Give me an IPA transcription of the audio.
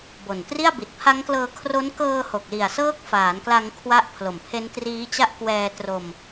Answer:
b o˨˩ n t r i˥˩ a̯ b i˨˩ t̚ pʰ a˦˥ ŋ k l ɤː˧ kʰ r o˦˥ n k ɤː˧ h o˨˩ k̚ l i˨˩ a̯ s ɤː˦˥ k̚ f aː˩˦ n k l a˧ ŋ kʰ w a˦˥ ʔ pʰ l o˨˩ m pʰ e˦˥ n t r iː˦˥ t͡ɕ a˥˩ ʔ k w ɛː˧ t r o˧ m

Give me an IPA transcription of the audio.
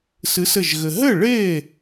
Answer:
s ɨ˨˥ s ɘ˧˩ ʒ ɣ ɘ˩ ɦ ɘ˥˩ ɭ e˥˩

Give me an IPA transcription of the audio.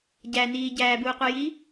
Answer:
ɟ æ n iː ɟ æː b uː qʷ i j iː

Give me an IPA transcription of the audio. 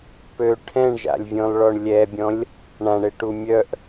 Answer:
p ø ʈʰ ɛ̃ ɳ ʒ a̰ lʲ vʲ ɔ̃ l ɭ ɔ ɳ lʲ ɛ bʲ ɔ̃ lʲ | ɳ ã ɳ e ʈ u mʲ œ ʔ

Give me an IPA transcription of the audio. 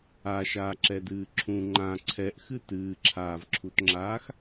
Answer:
a ʃ aː ǁ ɛ d ɨː ǁʰ ũ ŋ͡ǃ ã ǀʰ ɛ ʔ x ɨ t ɨː ǁʰ aː v ǁʰ u t ŋ͡ǁ aː x

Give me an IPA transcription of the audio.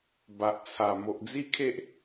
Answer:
b a˨ ʔ t͡sʰ a˨˩ m o˨ ʔ d͡z i˦ kʰ e˦ ʔ

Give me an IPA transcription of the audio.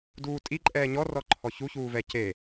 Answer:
d uː tʼ i ǃʼ ɛː ɲ ɔ r ɔ ǃʰ ɔ ç u ç uː v ɛ c e

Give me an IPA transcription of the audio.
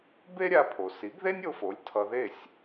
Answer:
b e˥ ɾʲ a˧ pʰ o˩ s i˩˥ ɡ ð e˥ nʲ o˧ f o˩˥ lʲ tʰ ʌ˧ ð e˥˩ sʲ

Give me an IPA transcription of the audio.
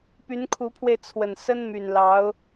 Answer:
p y˧˥ n kʰ u˧˥ pʰ w e˧ ɪ̯ t͡sʰ w ə˨˩ n s ə˥ n m y˨˩ n l ɑ˧˥ ʊ̯

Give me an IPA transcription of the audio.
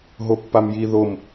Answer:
ɦ o pː a m j i ð o m

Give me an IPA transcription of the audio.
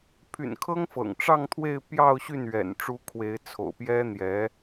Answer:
pʰ y̰˨˩ n kʰ ɤ˥ ŋ f ɤ̰˨˩ ŋ ʈ͡ʂ ɑ˥˧ ŋ t̪ʰ w e˥˧ ɪ̯ p j ɑ˥˧ ʊ̯ ɕ y˥˩ n ɥ ɛ̰˨˩ n ʈ͡ʂ u˧˥ kʰ w e˧˥ ɪ̯ t͡sʰ o̰˨˩ ʊ̯ p j ɛ˥ n̪ j ɛ˧˥

